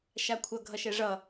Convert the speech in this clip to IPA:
ʃakʷʰʌ ɡʱʌʃɛʐʌ

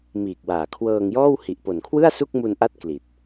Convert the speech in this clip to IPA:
miː˨˩k̚waː˨˩kʰwɤː˧ŋjɔː˥˩w hi˨˩ʔpo˨˩nkʰwɯ˥˩a̯ su˥˩k̚mu˧nʔa˦˥t̚ kli˨˩t̚

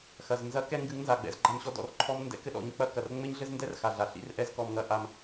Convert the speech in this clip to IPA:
xɐ˨z nzɐ˦ kɛ˦ŋɡɨ˨˦ŋnza˨ɡ͡bɛ̰˨z ɡ͡ǃa˦mɕɔ˦ dɔ̰˨rǃʰɔ˦mndɛ̰˦ kɘ˦ɗɔ̰˨˦ɲk͡pɐ˦kɐ˨r ŋ͡mɘ˦ɲɮɘ˦zndɛ˦rxa˨ ɮa˨ɬḭ˦rʔɛ˦z kɔ˦mŋɐ˦ ʔa˦m

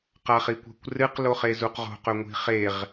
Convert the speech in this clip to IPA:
qaχikʷa̤kʷrɨq loχezuqʁo̤q ɵŋʷi̤χeʁ

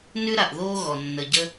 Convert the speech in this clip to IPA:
nʉ˥ɾa˩ʔðoː˥ɣɔ˩ nːə˨ɟə˥

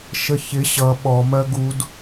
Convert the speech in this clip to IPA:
ʃəçɪ ɕʌ ɓɔ mɜɡud

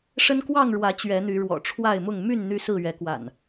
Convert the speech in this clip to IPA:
ʂə˦nkwɑ˥˨ŋɻwä˨˦ t͡ɕɥɛ˨˦n̪y˨˦ ɻwɔ̰˨˩ ʈ͡ʂʰwa˥˨ɪ̯mʊ˥˨ŋ my˥˨n n̪y˦sɹ̩˥˨ɥɛ˨˦ kwa̰˨˩n

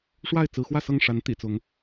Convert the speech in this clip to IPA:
ʂwa˥˨ɪ̯ t͡sɹ̩˨˦ xwä˥˨sɤ˥˨ŋʂa˨˦n t̪ḭ˨˩ t͡sʊ˨˦ŋ

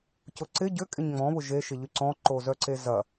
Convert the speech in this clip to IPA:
cʊǀɪ ɟʏ kʼɪɲŋ͡mɔ̃ βʊʒe ʃɪʎyǀɔ̃ ǃozœǀezɐ

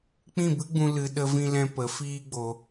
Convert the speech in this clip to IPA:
k͡pĩ˦˨bɨ˦ɡ͡bũ˧ lɨ˧ ɗə˦vĩ˦lɛ̃˦ pə˨˦ fiː˦ɡ͡bo˧

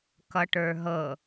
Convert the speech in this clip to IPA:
kʌʈə˞ɦɤ

